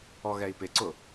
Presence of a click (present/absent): present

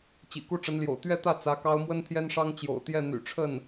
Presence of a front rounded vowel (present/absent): present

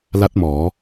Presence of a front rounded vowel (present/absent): absent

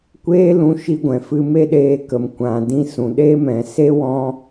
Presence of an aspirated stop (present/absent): absent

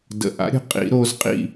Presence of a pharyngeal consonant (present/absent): absent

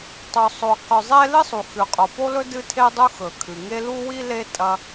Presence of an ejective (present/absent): present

